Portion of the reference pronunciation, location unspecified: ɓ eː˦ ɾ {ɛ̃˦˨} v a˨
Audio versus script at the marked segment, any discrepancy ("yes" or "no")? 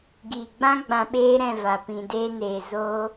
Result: no